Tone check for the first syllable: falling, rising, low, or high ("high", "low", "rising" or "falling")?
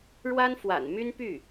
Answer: high